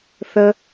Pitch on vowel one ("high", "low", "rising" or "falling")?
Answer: high